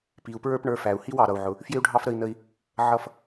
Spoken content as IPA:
p i˩ u̯ p ɹ ə˞˥ p ɳ ə˞˧ f æ˩ u̯ h i˥ w ɑ˩ ɾ ʌ˩ u̯ ʕ ʊ˩ | f j ɪ˥ u̯ ɖʱ ɑ˥ f ɾ ə˧ i̯ n ə˧ i̯ | ʕ ʌ˧ f

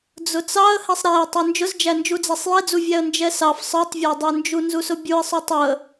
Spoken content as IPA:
d͡z ʊ t͡s ɑ ə̯ h ɛ sˤ ɾ æ ɪ̯ tˤ ə˞ n d͡ʒ ʊ z d͡ʒ æ n d͡ʒ u d͡z æ sˤ j ɛ d͡z u vʲ æ ə̯ n d͡ʒ ɛ s ɑ f sˤ ə˞ tˤ vʲ æ dˤ ə˞ n d͡ʒ u n z u s ʊ bʲ u ə̯ sˤ ʊ tˤ ʊ ə̯

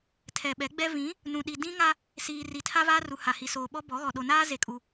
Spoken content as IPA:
tʰ ɛ˨ ɓ ɛ˨˦ ɡ͡b ɛ˦ v ĩ˨˦ | n ũ˨ ɗ i˨ d ĩ˦ ŋ a˦ | s iː˨ r i˨ tʰ a˦ v aː˦ r u˨ h a˨ h i˨ s oː˨ ɓ ɔ˦ b ɔ˨˦ ɣ ɔ˨ ɗ o˨ n aː˦ z e˦˨ kʼ u˦

